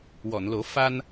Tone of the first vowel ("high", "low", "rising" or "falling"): low